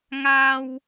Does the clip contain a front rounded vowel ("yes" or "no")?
no